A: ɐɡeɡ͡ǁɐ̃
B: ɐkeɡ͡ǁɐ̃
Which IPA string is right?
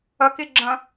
B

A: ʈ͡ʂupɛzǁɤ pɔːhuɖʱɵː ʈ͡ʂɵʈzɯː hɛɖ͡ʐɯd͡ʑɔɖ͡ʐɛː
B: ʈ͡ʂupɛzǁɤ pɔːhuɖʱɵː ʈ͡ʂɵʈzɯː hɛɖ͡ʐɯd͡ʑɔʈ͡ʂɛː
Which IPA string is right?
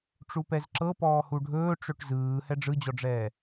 A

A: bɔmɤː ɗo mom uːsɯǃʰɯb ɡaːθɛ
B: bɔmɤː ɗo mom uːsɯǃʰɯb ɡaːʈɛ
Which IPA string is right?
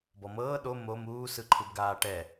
B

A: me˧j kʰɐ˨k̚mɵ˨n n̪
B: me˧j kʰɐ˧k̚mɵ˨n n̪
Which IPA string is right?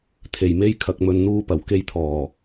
A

